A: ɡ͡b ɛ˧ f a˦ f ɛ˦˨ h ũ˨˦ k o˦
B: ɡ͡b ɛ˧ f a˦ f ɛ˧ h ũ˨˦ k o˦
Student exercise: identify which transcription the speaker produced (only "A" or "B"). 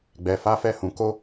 A